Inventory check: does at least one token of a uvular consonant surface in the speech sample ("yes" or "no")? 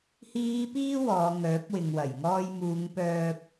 no